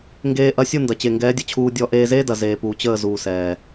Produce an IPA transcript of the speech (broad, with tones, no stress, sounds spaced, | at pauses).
ŋ ɡ eː˧ ʔ ɐ˧ sʲ u˦˨ n d ɐ˨ t͡ɕ e˨ ŋ ɡ ɛː˨˦ dʲ ə˨ t͡ɕʰ uː˧ dʲ ɔ˧ ʔ eː˧ z eː˦ d ɐ˨ z eː˨ p uː˨ t͡ɕ əː˦˨ z uː˨ s ɛː˨